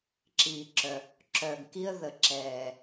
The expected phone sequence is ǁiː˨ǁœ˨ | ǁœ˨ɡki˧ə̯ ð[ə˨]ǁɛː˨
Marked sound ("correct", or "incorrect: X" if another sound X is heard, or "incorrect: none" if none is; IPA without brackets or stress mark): correct